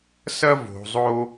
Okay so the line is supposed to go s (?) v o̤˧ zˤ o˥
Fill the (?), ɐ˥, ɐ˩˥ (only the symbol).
ɐ˥